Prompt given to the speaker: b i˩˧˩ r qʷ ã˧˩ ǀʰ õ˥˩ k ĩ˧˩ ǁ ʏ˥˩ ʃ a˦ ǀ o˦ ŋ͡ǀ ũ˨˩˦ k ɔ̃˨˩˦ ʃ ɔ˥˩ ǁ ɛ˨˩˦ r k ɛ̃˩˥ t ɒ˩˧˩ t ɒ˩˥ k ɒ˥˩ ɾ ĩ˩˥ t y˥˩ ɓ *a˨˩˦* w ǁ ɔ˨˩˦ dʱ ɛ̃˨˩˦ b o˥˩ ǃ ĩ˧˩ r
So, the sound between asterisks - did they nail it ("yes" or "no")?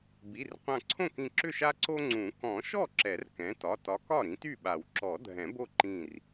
yes